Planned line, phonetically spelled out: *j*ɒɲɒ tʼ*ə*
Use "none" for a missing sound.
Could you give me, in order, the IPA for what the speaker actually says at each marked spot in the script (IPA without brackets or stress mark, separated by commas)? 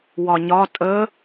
w, ə